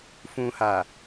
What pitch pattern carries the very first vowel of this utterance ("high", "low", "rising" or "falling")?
low